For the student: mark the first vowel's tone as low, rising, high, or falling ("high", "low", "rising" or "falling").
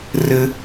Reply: high